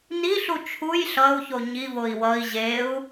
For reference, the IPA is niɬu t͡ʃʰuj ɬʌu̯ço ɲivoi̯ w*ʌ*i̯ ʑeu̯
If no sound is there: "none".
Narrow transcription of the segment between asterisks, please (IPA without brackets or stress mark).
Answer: ʌ